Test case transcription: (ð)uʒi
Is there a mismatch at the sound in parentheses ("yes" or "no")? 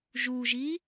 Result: yes